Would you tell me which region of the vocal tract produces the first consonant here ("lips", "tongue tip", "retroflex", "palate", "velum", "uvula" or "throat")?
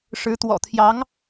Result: retroflex